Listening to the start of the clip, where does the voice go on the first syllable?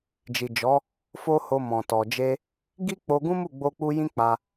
low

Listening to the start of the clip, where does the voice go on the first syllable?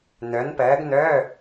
rising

